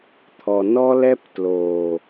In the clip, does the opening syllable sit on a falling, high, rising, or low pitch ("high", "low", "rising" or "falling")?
low